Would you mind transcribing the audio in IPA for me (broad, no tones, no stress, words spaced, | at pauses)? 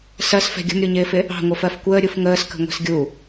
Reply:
sɜsfɛ̤ ɡʲə̤mɾʲuɲɪːfɪ | ɑ̤ŋʷəfɜf kʷəːɾʲuf ŋəːskə̤ŋʷɛ̤s ɡʲu